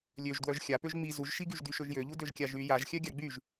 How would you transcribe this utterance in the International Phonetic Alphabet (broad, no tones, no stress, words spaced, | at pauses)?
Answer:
lʲøʒdwœʒ xʲapøʒ ŋ͡mi zuʒʃiɡyʒdy ʃøʒjøʎu døʒkʲaʒy jaʒxʲœ ɡʲaɡ͡byʒ